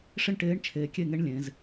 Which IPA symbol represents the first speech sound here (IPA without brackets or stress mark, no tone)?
ʂ